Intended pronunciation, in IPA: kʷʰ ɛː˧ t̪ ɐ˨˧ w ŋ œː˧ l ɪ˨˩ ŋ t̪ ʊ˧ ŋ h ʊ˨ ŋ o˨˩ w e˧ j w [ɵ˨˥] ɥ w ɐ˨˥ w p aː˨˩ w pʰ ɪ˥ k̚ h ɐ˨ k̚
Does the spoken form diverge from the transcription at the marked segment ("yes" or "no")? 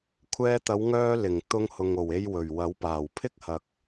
yes